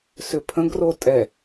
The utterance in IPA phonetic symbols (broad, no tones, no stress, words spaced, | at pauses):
sʏpʰə̃ɡ rotʼɛ